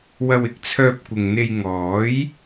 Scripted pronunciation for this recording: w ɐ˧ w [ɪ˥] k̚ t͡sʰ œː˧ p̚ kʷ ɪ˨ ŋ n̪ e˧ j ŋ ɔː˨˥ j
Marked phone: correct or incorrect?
incorrect: ɪ˨˥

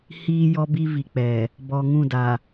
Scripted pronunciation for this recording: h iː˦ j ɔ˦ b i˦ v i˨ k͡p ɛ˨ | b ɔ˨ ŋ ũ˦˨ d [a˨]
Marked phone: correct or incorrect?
correct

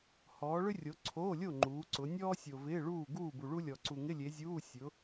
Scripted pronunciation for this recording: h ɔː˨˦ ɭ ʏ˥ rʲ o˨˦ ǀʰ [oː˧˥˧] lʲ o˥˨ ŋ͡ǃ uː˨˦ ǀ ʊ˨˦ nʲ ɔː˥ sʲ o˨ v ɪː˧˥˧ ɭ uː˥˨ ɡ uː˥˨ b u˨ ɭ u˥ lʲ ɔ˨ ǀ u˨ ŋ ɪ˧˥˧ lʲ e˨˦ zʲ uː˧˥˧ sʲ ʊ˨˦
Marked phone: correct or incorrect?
correct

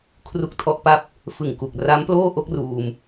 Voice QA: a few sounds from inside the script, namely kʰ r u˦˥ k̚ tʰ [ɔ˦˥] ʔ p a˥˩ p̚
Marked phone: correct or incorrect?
correct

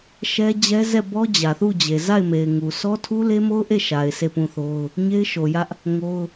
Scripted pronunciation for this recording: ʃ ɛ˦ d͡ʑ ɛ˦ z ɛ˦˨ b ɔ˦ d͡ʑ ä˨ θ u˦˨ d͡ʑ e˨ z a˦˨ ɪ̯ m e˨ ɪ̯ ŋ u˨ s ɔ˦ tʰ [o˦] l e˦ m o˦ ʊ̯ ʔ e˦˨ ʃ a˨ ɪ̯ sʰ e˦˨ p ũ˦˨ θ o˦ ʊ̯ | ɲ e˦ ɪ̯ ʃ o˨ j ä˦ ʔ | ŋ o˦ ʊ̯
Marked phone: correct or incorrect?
incorrect: u˦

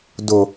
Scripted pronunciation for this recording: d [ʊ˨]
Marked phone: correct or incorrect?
correct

